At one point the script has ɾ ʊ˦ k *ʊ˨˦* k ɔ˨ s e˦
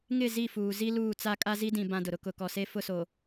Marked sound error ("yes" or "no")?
no